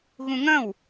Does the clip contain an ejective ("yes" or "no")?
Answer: no